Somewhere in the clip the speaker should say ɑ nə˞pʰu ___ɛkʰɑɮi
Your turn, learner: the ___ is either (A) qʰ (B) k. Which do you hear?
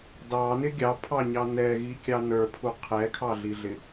A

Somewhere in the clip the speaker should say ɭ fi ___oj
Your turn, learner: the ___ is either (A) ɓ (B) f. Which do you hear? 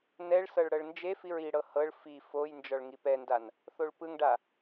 B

